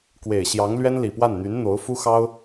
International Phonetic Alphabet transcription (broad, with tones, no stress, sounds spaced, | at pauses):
k w e˨˩ ɪ̯ ɕ j ɑ˧˥ ŋ l ɥ ɛ˥ n l i˨˩ p w a˥˩ n n̪ y˧˥ n n̪ o˧˥ ʊ̯ f u˥ x ɑ˥ ʊ̯